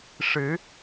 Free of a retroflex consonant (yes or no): no